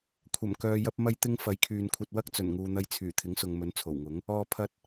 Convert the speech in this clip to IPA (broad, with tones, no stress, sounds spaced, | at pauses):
kʷʰ ɐ˨˩ m k œː˨ j ɐ˧ p̚ m ɐ˧ j t̪ ɪ˧ ŋ f ɐ˨˥ j kʰ yː˨ n kʷʰ ɐ˧ t̚ w ɐ˥ k̚ t͡s ɵ˨˩ n ŋ uː˨ n̪ ɐ˧ j t͡sʰ yː˨˩ t̪ʰ ɪ˨˥ ŋ s ʊ˨ ŋ m ɵ˨˥ n t͡sʰ o˨˩ w ŋ ʊ˨˥ ŋ | ɔː˨ pʰ ɐ˨ t̚